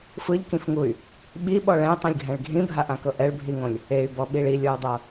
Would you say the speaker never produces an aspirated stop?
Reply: yes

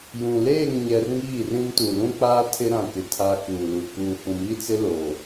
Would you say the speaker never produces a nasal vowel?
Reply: no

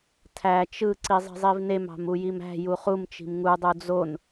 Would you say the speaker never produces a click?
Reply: no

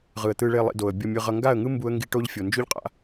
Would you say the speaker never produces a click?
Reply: yes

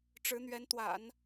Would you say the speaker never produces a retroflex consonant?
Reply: no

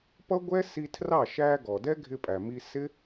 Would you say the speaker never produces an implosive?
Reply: yes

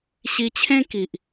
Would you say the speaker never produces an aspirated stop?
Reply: no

